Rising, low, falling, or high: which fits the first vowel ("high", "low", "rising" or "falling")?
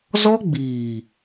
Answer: high